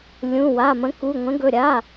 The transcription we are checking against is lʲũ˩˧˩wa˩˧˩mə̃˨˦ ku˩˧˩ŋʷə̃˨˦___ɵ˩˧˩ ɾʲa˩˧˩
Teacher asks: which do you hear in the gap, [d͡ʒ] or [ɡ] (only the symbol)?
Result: ɡ